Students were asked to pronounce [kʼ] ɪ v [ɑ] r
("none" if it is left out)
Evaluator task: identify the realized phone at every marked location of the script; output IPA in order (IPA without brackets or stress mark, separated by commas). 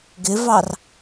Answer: ɡ, ɑ